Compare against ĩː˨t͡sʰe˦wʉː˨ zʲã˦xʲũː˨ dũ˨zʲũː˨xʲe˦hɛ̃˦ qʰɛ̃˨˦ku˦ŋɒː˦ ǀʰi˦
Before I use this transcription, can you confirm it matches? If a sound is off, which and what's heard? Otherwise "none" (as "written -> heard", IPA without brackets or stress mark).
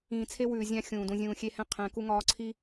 none